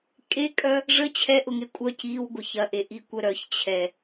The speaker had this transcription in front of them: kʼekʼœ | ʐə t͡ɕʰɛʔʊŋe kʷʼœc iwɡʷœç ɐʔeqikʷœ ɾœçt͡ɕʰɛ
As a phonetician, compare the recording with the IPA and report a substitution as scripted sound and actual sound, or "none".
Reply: q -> ʔ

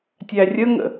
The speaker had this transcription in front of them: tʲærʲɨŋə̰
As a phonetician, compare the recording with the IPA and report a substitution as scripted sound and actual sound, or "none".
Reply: ɨ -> ə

